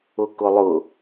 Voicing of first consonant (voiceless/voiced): voiceless